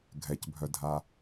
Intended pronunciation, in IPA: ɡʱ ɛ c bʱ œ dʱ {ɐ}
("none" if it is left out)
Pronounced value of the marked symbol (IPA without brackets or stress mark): a